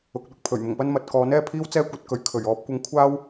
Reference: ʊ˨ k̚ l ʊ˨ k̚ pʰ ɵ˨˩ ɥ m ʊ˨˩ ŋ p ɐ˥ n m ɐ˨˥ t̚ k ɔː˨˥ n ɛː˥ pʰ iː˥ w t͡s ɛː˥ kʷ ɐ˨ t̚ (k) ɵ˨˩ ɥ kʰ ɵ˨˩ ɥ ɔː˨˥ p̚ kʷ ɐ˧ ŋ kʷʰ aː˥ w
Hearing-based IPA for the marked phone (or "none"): k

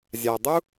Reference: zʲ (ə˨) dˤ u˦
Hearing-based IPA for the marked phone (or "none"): a˨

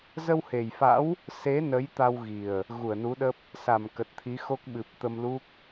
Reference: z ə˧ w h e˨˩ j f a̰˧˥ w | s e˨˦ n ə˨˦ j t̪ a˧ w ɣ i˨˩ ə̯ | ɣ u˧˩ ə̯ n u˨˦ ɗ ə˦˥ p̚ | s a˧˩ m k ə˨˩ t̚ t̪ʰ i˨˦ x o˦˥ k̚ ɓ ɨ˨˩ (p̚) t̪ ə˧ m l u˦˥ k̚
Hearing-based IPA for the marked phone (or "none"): p̚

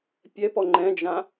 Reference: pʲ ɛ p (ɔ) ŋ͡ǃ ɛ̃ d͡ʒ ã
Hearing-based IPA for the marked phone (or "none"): ɔ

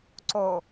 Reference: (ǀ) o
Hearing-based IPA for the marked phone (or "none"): ǀ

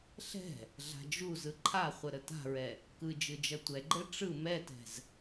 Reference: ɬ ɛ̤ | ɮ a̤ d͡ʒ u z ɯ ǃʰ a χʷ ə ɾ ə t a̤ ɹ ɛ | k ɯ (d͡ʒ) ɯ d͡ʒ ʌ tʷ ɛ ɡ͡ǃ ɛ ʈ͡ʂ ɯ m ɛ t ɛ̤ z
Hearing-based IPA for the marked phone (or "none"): d͡ʒ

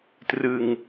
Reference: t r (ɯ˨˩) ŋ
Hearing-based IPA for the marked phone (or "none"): ɯ˧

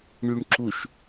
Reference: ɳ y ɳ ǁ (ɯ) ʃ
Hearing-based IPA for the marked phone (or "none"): u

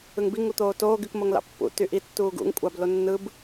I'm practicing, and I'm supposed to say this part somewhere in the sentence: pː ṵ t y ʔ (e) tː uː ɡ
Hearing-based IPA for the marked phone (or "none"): i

